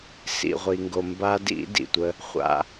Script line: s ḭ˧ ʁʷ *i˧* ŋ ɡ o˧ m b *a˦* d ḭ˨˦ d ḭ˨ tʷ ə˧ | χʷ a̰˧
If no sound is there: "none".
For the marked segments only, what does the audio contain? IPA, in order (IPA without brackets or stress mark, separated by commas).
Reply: i˧, a˦